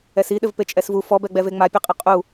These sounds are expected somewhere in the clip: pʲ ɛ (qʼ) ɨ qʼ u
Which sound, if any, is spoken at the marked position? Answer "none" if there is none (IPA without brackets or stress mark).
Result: qʼ